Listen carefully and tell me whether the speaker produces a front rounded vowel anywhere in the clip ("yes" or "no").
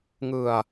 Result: no